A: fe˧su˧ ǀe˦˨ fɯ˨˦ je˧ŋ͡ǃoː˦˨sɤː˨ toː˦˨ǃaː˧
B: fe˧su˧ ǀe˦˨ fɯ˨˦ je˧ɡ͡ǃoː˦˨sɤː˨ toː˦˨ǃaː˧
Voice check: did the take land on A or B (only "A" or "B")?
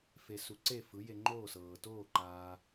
A